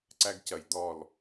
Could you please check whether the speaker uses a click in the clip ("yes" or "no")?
yes